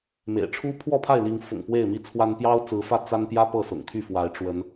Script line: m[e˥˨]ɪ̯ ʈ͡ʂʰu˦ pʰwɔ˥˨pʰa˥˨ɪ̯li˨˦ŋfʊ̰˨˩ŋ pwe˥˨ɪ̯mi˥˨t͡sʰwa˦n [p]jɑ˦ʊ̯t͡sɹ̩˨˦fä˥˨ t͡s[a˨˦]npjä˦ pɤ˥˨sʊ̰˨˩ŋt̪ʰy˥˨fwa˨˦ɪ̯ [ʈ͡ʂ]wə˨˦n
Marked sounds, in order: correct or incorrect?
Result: incorrect, correct, incorrect, correct

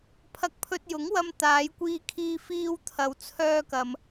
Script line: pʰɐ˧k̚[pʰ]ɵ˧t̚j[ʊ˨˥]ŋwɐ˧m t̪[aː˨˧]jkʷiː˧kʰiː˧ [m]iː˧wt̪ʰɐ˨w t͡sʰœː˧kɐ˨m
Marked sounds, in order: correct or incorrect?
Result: correct, correct, correct, incorrect

